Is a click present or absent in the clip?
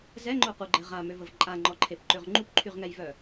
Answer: present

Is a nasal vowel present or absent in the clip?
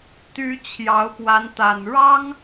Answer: absent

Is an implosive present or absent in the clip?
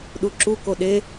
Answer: present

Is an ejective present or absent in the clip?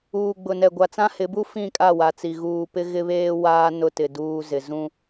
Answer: present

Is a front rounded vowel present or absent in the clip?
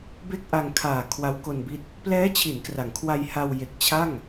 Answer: absent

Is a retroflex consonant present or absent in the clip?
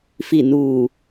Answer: absent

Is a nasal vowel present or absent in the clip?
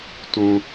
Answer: present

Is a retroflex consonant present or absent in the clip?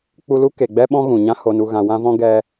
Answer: absent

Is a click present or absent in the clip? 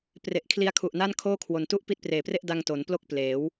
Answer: absent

